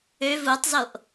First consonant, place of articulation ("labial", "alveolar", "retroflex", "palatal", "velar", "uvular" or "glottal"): labial